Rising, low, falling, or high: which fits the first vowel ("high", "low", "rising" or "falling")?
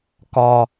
low